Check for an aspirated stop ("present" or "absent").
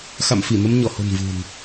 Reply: absent